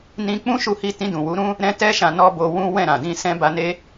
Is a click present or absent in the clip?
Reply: absent